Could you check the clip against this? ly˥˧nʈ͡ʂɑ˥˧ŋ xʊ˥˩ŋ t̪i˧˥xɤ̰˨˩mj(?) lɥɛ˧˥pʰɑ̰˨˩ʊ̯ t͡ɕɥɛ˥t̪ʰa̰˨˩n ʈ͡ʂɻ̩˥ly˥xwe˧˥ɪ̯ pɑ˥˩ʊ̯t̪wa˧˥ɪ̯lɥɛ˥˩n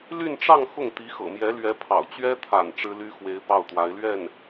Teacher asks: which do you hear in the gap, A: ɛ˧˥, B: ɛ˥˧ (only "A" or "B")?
A